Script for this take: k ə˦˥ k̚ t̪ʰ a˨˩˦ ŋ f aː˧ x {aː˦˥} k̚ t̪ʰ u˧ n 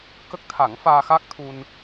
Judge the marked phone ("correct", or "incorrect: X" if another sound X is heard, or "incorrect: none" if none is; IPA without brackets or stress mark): correct